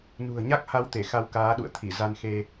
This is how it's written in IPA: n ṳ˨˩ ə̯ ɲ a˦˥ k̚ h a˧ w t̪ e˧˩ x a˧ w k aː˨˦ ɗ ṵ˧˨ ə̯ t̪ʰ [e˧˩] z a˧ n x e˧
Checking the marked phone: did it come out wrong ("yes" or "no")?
yes